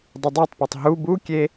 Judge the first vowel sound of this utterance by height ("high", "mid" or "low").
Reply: high